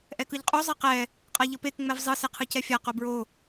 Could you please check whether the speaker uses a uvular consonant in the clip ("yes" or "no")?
yes